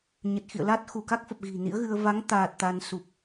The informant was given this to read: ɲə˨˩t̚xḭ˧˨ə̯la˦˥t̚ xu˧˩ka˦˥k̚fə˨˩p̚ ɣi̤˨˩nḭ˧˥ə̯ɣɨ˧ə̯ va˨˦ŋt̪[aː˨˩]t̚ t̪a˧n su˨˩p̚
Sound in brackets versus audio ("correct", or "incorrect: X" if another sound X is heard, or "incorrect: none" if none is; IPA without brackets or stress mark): correct